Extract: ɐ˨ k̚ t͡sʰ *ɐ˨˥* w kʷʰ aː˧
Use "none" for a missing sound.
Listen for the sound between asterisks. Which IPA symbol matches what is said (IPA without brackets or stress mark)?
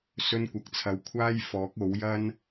ɐ˨˥